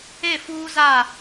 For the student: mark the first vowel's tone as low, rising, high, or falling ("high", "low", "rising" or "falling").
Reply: falling